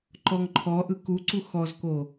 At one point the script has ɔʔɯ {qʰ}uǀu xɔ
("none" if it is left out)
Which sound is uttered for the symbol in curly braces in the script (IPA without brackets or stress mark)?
k